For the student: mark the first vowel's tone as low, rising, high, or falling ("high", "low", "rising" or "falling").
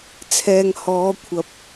low